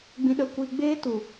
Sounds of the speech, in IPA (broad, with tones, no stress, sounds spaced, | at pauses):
ɡ͡b ĩ˧ ɗ ə˧ kʷ i˧ ɡ͡b eː˦ t u˨